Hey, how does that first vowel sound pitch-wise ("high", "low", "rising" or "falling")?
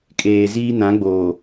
low